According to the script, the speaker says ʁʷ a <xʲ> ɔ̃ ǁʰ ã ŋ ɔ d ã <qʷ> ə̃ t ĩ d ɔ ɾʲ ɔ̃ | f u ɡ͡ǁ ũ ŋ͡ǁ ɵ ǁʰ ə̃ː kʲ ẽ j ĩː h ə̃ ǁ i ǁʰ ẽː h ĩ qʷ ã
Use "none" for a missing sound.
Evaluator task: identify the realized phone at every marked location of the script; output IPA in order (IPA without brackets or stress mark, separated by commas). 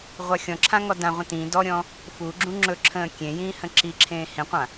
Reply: xʲ, ʁʷ